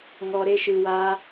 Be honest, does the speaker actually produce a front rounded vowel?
no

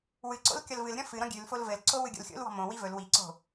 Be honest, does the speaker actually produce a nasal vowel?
yes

